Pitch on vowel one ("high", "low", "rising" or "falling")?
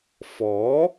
rising